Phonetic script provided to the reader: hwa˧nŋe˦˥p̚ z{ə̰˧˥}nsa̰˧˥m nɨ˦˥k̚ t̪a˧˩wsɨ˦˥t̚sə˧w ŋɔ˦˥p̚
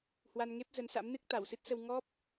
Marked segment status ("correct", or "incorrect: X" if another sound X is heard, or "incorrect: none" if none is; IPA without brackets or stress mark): incorrect: ə˨˦